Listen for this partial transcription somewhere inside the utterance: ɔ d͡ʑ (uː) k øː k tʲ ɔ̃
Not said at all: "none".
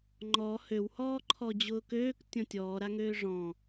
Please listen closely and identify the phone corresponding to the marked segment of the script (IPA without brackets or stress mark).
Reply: ʊː